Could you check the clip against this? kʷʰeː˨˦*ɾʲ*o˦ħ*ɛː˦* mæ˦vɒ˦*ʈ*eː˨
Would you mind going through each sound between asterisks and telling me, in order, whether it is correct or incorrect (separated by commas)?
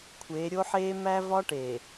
correct, incorrect, correct